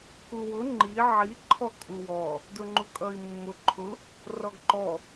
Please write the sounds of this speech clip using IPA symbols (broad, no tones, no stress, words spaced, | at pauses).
kuwʊ ŋ͡ǃi ʕi ǃʰɔkʼuwɔ | dʊŋ͡ǃukʼʌi̯mːʊ ǃʰʊ | rɔɡǃɔ